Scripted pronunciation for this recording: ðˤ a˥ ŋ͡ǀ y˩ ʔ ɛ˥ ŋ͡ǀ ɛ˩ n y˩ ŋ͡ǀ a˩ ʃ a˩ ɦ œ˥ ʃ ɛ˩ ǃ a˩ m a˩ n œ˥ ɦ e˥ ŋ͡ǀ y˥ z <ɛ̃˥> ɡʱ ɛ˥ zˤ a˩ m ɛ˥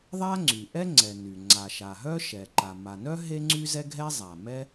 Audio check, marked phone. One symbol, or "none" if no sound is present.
ɛ˥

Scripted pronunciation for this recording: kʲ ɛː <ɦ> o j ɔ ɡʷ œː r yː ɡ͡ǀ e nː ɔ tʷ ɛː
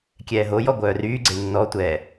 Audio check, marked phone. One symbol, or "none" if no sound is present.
ɦ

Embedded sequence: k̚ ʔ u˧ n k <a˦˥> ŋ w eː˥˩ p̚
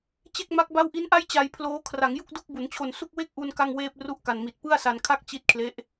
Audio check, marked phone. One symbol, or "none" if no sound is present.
a˥˩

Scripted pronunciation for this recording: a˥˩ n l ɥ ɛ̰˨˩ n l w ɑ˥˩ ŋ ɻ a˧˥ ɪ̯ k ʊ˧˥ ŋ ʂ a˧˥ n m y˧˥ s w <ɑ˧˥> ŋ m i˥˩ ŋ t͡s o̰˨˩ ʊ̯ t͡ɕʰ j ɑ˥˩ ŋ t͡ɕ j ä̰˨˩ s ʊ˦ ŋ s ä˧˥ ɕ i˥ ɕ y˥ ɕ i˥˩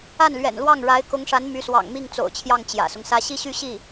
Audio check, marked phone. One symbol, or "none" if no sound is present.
ɑ̰˨˩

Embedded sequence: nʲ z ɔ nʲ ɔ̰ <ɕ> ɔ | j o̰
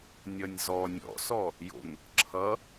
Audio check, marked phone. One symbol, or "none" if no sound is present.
s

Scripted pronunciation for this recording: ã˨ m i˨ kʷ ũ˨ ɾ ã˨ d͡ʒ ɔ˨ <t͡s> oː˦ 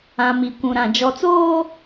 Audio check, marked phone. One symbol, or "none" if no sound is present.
t͡s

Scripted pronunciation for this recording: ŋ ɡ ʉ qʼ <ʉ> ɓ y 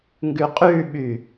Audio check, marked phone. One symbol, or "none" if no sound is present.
ʉ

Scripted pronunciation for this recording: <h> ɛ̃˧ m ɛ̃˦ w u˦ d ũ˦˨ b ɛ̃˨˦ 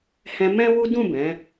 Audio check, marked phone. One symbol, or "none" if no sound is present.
h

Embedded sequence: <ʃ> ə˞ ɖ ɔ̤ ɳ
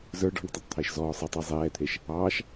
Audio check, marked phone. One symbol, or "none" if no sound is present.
z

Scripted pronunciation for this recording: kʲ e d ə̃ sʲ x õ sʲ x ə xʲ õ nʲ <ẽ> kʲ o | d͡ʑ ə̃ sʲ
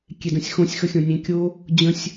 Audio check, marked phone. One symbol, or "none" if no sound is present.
ẽ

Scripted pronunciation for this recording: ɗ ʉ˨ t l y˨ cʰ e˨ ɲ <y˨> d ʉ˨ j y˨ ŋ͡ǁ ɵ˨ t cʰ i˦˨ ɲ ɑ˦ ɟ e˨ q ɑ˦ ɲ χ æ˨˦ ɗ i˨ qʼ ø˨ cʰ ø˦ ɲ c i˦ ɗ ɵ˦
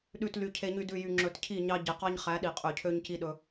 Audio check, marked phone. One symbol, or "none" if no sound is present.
y˨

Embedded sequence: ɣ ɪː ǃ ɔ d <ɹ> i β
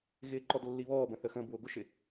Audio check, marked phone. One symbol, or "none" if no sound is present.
lː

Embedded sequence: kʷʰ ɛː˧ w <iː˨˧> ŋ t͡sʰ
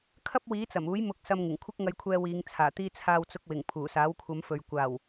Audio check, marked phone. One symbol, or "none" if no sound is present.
iː˨˧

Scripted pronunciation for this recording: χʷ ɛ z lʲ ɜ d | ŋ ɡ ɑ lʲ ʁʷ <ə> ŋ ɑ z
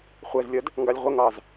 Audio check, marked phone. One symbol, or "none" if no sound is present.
ə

